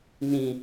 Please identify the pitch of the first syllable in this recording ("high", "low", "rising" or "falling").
low